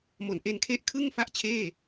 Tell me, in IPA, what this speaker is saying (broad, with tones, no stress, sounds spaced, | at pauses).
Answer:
m o˨˩ n ʔ e˧ n kʰ e˦˥ ʔ kʰ ɯ˥˩ ŋ f a˥˩ ʔ t͡ɕʰ eː˥˩